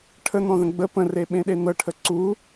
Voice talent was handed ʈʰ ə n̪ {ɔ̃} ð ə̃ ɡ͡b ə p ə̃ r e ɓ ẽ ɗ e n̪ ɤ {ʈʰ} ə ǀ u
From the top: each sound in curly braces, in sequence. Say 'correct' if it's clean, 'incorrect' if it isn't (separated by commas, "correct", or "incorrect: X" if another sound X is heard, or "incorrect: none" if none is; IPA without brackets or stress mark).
correct, correct